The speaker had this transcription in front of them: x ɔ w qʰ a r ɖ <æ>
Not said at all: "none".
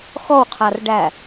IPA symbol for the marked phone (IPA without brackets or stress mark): æ